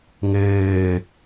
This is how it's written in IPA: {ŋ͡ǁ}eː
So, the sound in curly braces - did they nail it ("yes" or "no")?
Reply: no